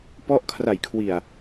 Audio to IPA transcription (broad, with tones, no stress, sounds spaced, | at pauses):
p ɔ˥˩ ʔ kʰ r a˨˩ j kʰ w i˨˩ a̯